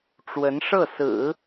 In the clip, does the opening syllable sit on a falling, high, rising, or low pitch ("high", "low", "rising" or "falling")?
rising